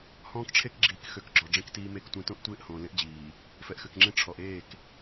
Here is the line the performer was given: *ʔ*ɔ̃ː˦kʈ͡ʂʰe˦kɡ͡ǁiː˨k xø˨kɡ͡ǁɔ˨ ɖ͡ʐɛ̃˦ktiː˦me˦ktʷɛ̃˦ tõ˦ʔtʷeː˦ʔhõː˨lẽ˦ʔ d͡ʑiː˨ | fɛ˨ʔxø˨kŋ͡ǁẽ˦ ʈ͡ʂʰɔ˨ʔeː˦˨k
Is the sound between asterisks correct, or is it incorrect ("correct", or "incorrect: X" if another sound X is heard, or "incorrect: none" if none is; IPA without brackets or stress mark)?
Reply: incorrect: h